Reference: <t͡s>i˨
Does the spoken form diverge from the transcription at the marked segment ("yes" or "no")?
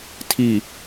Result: yes